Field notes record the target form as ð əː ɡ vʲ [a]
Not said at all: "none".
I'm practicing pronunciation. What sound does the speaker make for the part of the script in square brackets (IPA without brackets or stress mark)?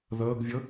ə